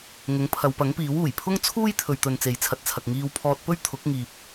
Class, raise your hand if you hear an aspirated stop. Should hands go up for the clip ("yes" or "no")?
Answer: yes